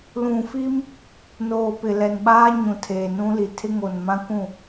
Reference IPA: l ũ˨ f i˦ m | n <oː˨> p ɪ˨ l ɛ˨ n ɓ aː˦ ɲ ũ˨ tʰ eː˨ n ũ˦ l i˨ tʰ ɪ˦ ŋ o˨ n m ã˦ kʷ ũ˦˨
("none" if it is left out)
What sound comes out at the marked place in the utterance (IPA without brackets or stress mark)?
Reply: oː˨